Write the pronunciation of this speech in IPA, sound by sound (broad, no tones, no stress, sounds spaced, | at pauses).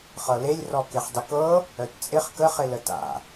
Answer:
χ ɤ l e lʲ r ɔ k e χ dˤ ɪ k ɤ | œ t t͡sʼ ɪ χ k ə χ ɪ l ə t a̰